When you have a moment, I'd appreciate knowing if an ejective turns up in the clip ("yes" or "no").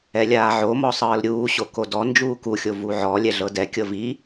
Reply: no